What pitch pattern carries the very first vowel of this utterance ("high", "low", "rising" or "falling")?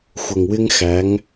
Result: low